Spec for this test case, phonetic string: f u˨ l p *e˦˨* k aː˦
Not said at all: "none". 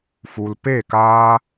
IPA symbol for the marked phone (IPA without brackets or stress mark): e˦˨